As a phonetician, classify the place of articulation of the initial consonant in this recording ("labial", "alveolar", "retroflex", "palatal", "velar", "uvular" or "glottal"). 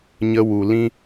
palatal